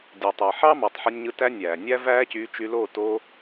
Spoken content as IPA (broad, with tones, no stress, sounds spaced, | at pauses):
dʲ ɯ˨ tˤ ɯ˨ ħ ɑ˦ m ɑ˨ tˤ ħ ɯ˧ nʲ ɲ ɯ˧ t æ˦ nʲ æː˨ nʲ æ˦ v æː˦ c yː˧ t͡ʃ y˧ l o˦˨ t o˧